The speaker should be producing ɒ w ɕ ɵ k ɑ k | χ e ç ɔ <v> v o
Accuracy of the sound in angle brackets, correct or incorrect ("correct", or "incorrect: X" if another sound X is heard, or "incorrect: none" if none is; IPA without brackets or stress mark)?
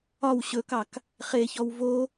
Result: incorrect: w